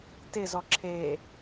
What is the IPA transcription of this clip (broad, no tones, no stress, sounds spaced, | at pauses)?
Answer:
t ɪ z ɔ ǁʰ e